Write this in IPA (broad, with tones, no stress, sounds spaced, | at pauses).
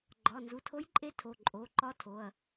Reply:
ɡ͡ǃ ɒ˩˧˩ n z u˩˧˩ tʰ o˧˥ j ǃʼ e˧˥ tʰ o˩˧˩ ǃʼ o˩˧˩ ǃ ɒ˧˥ tʰ o˩˧˩ ɐ̯